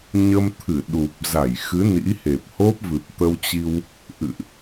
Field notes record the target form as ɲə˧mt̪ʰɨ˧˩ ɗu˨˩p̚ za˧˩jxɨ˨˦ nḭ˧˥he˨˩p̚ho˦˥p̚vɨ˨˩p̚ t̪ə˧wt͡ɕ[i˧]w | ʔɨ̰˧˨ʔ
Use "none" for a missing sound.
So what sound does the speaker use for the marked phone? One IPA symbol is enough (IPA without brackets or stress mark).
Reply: i˧